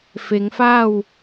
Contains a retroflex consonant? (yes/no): no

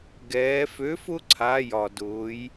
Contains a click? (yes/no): yes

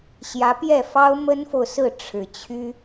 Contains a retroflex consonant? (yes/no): yes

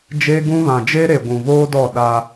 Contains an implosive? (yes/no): yes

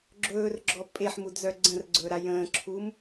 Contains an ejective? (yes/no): yes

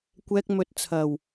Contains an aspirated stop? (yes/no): yes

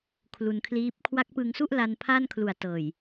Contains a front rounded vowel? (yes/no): no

